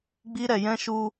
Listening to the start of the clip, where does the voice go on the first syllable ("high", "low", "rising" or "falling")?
high